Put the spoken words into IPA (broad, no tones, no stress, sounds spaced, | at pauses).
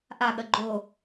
ʔ a ɠ ɐ ɡ͡ǃ o